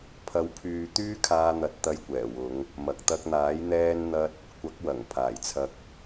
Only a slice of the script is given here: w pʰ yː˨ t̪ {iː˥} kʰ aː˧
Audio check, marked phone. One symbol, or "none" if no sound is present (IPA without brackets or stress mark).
yː˥